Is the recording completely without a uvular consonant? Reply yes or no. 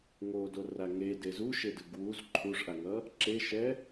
yes